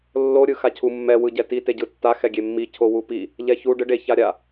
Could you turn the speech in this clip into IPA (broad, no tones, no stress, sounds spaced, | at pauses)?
lː o ɾʲ ɯ x a cʰ u mː ɛ w ɯ ɟ ɛ t i t e ɟ ɯ tː a x ɛ ɡʲ e mː i cʰ o w u p i | ʎ ɛ ç u ɖ ɯ ɖ e ç a ɾʲ a